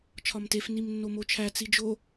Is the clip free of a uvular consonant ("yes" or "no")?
yes